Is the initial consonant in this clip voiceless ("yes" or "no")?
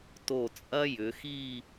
yes